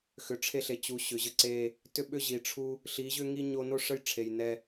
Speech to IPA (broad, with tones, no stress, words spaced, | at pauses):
xʏ˨˦ʈ͡ʂʰe˦ɬe˨˦ t͡ɕu˨˦ɕʏ˨ʑə˦ǀe˦ | tʏ˦ɓʏ˦ ʑi˨ʈ͡ʂʰu˦ | ɬi˨˦ʑʏ˦ŋi˦ ɲo˦ no˦ʂə˦jʈ͡ʂʰe˨j nɛ˦